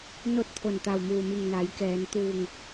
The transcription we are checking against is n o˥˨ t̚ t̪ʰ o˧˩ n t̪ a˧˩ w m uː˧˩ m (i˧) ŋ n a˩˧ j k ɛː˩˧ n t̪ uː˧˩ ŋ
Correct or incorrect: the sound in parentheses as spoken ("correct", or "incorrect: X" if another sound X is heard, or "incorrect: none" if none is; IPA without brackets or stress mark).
incorrect: i˧˩